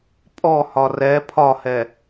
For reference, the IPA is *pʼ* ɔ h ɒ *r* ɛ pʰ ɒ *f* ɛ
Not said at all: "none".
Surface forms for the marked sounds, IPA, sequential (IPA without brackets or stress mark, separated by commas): pʼ, r, h